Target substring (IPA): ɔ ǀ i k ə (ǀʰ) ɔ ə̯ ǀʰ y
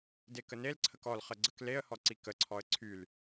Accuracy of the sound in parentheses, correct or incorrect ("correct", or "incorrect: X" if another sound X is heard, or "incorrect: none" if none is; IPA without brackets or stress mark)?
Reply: correct